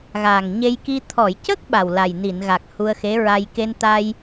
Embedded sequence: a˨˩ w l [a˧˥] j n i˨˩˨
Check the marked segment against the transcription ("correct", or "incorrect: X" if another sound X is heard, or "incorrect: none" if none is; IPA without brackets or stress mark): incorrect: a˨˩